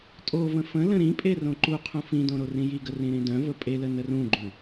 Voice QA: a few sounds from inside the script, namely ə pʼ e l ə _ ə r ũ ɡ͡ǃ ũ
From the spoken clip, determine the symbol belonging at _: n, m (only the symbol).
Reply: n